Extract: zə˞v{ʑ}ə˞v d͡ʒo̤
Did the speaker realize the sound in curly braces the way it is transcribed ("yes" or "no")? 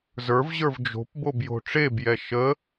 yes